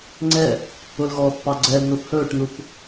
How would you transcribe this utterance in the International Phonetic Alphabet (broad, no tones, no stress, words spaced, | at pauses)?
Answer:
ŋ͡ǀɛ | ʊlɣɔːθ pɑɡ͡ǀɛlnoθ hɵːʈnuθ